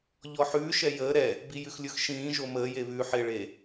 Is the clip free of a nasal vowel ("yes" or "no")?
no